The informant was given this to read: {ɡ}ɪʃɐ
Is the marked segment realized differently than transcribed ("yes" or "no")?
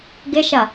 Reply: no